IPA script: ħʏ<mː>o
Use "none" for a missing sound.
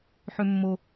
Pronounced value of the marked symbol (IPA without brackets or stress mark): mː